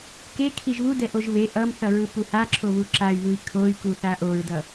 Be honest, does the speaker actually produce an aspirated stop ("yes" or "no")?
yes